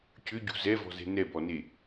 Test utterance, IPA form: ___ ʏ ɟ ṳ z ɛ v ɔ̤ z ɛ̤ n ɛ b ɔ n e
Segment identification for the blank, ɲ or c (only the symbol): c